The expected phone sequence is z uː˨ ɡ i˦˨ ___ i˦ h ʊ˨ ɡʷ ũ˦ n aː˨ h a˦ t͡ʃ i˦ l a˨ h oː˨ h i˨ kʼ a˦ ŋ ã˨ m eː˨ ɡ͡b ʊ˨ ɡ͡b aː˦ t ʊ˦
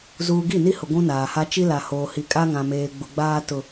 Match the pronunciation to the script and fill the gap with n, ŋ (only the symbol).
n